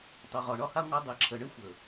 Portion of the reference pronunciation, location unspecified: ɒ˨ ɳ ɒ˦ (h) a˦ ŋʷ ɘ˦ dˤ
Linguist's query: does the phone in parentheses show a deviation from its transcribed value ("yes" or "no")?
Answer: no